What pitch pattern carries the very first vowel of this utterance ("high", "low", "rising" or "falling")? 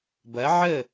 rising